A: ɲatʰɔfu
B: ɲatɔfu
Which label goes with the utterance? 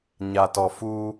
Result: B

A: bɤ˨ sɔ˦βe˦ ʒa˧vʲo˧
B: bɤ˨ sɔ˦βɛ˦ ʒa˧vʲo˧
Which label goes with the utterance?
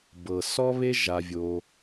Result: A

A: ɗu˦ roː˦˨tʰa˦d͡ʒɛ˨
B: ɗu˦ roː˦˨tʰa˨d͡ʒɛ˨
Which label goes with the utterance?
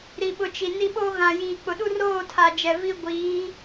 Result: B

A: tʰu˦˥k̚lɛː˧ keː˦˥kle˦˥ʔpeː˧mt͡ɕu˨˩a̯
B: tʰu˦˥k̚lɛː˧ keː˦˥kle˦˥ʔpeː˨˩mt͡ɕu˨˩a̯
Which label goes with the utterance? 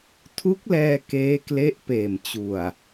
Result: B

